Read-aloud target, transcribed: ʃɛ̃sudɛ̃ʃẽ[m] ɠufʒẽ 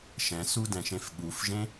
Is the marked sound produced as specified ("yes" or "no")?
no